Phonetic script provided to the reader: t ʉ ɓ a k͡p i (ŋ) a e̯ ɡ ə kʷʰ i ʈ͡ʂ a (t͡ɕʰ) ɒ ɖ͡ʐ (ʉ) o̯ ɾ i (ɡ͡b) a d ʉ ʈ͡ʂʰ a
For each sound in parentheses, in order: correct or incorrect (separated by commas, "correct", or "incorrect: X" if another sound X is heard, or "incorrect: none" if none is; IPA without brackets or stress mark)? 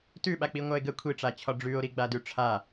incorrect: ŋʷ, correct, correct, correct